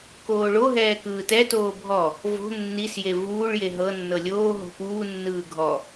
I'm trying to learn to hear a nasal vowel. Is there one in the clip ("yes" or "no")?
no